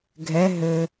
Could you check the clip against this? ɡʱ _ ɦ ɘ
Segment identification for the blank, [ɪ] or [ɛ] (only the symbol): ɛ